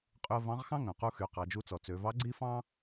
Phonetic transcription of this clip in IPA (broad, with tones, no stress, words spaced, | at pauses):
qʼy˧ə̯vɑ̃˧˥ʁxɑ̃˥ ŋœ̃˩qu˧xy˩˧ qɑ˩˧d͡ʒu˧t͡sɔ˩˧ t͡sø˩˧vɑ˧˥ ɡ͡ǀi˥fɑ̃˥